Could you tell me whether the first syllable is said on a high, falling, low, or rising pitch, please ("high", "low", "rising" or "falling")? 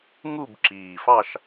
falling